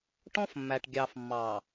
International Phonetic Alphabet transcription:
ʈ ɔ̃˦ f mː æ˨ ʈ ɡʲ ɑ˨ f mː ɑ˨

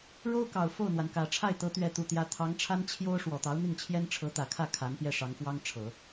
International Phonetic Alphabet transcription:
ɻ o˥ ʊ̯ k ɑ˨˩ ʊ̯ f o˥˩ ʊ̯ n̪ w a˩ n k ä˨˩ ʈ͡ʂʰ a˥˩ ɪ̯ t̪ ɤ˧˥ t̪ ɥ ɛ˥˧ t̪ u˥˩ t̪ j ä˥ t̪ʰ ɑ˧˥ ŋ ʈ͡ʂʰ a˥ n t͡ɕʰ j o˥ ʊ̯ ʂ w ɔ˨˩ t̪ ɑ˧˥ ʊ̯ n̪ i˥˩ ŋ t͡ɕʰ j ɛ˥ n ʈ͡ʂʰ ɤ˧˥ t̪ ä˨˩ kʰ ä˥˩ kʰ a˧˥ n p j ɛ˥˩ ʂ ɑ˧˥ ŋ f w ɑ˥ ŋ ʈ͡ʂʰ ɤ˨˩˦

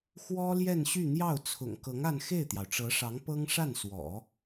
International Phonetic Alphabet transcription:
x w ɔ˥ l j ɛ˥˧ n ɕ y˥˧ n̪ j ɑ˥˩ ʊ̯ t͡sʰ ʊ̰˨˩ ŋ k ɤ˧˥ ŋ a˥˧ n x e˥˩ ɪ̯ t̪ j ɑ˩ ʊ̯ ʈ͡ʂ ɤ˧˥ ʂ ɑ˧˥ ŋ p ɤ˥ ŋ ʂ a˥˩ n s w ɔ̰˨˩˦

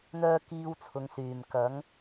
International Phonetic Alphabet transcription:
n̪ œː˥ k iː˧ w t͡sʰ ʊ˨ ŋ s yː˨˩ m k ɐ˨˥ ŋ

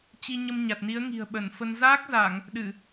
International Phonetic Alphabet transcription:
t͡ɕ i˧ ɲ ə˧ m ɲ a˨˩ t̚ n i˨˦ ə̯ ŋ i̤˨˩ ə̯ ɓ ə˧˩ n f ə˧ n z aː˦˥ k̚ z a˧˩˨ ŋ | ɗ ɨ˧˩˨

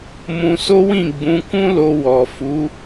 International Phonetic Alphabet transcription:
m ũ˧ s o˦ w ĩ˦˨ ɡ͡b ũ˨˦ k ũ˦ l o˧ w ɔ˨ f u˨˦

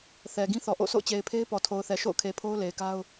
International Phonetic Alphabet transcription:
θ ɛ˨ ɡ ĩ˦ θ ɔ˨ ʔ o̰˦˨ sʰ o̰˦˨ ʊ̯ t͡ɕ e˨ ɪ̯ pʰ e˦ ɪ̯ p ɔ˨ tʰ o˨ ʊ̯ θ ɛ˨ ʃ o̰˦˨ ʊ̯ kʰ e˨ pʰ o˦ ʊ̯ l e˨ ɪ̯ k a˦ ʊ̯

